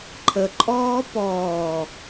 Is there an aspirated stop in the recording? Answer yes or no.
yes